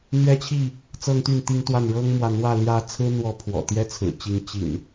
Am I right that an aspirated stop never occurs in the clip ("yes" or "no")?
no